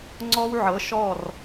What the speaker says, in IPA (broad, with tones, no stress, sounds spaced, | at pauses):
ŋ͡ǀ ɔ˦ w ʕ ɤ˨˦ ʃ ɔ˦˨ r